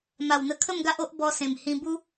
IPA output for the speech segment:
m a˨˩ w n̪ ə˧ kʰ ə˥˧ m ɡ a˦ ʔ o˦ ʔ b ɔ˧ s ẽ˨˩ m h ĩ˧ b u˦

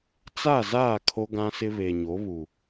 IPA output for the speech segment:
t͡s a˦˨ z aː˦˨ kʰ o˦ ɡ ã˦ s ɪ˦ β e˨ ɲ o˨˦ β u˨

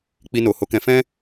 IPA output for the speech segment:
k͡p i˧ n o˨ h o˨˦ k ɛ̃˧ f ɛ̃˦

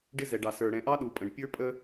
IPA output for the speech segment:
ɖ ɪ˦ z ɛ˨ ɖ ɑ˨ s ə˞˨ ɽ ɛ̃˨ ʔ ɑ˦ ɗ u˨ pʼ ə̃˨ ɖ pʲ ə˞˦ pʼ ə˦

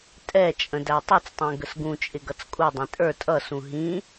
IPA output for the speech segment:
tʼ ɛ t͡ʃʼ ə̃ d æ tˤ u t͡s tˤ ɛ̃ ɡ ə s ɡ ũ t͡ʃʼ ɪ ɡ ʌ t͡s kʼ u dˤ ɛ̃ tʼ ə˞ tʼ ʌ s ũ ɦ ĩ

